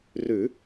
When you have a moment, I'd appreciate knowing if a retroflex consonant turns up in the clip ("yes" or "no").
no